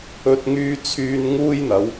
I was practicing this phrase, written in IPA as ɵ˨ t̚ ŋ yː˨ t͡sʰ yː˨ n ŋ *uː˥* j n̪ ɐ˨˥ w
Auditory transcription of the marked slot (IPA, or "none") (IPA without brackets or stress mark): uː˥